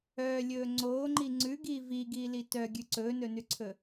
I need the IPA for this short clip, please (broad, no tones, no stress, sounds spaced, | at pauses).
œː lʲ ɵː ŋ͡ǀ oː ŋ͡ǃ i ŋ͡ǀ ʉ ɡ iː v i ɡ iː l i t œ ɡʲ ʉ ǀ ɵː n ɵ n ʉ ǀʰ ɵ